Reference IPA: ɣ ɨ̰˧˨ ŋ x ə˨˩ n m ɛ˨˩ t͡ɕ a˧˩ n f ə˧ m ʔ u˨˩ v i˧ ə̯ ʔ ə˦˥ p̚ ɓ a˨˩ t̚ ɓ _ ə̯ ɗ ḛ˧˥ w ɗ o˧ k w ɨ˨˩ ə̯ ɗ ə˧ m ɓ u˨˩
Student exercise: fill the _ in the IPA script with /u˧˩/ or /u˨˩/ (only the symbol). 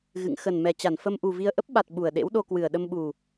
u˨˩